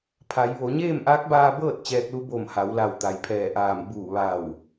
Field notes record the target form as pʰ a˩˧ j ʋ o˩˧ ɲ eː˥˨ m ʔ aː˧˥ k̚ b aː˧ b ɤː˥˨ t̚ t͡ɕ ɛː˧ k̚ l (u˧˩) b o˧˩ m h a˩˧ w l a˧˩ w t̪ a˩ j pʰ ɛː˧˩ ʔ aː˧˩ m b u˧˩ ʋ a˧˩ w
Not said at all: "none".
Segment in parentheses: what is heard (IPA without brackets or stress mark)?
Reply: u˧˥